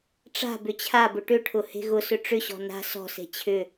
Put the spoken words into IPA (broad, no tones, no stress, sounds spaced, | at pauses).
ʈ͡ʂ a̤ b ʏ t͡ɕʰ a b ʊ ʈ ʏ ʈʰ ʊ h e̤ ɣ ʊ s ʏ ʈ͡ʂ ʏ ɕ ɔ̤ n a̤ s ɔ̤ s e̤ t͡ɕʰ ʏ